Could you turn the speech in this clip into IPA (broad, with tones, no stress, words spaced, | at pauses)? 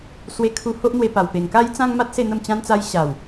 swe˧kʰu˧ho˦ʔn̪we˧ pa˨˩wpe˨˩ŋka˦jt͡sã˦ŋ ma˦t̚se˥˧n̪ə˥˧m t͡ɕã˧nt͡sa˧j ɕa˨˩w